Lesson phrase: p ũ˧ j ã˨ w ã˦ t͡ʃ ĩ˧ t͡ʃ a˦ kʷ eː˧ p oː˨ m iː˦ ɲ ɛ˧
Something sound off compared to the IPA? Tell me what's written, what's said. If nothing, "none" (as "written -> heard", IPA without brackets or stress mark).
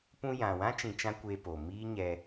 a˦ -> ã˦